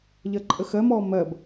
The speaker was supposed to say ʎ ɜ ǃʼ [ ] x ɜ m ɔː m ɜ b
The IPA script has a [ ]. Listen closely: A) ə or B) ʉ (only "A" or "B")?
A